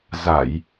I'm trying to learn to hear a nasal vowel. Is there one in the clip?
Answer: no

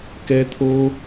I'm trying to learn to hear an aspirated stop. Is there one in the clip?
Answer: yes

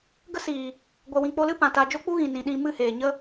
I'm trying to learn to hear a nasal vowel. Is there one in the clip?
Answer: yes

